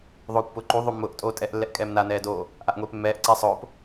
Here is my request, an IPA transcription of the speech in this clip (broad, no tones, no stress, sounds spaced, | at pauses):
ðˤ oː kʷ p ʊː ǃ u ðˤ o mː ʊː ʔ tʼ oː tʼ ɛ ʔ lː ɛ ʔ kʼ ɛː m n a n ɛː d oː | ʔ a ʔ ŋʷ eː p mː ɛː ʔ ǀ ɛ sˤ ʊː p